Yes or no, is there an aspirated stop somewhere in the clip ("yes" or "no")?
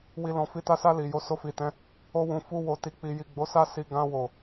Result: no